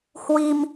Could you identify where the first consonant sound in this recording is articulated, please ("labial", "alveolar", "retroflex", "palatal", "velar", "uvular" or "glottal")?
glottal